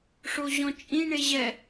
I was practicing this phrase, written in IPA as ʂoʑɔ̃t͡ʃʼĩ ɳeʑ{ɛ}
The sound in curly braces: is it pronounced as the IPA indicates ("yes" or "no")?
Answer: yes